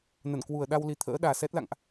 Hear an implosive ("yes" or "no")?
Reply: yes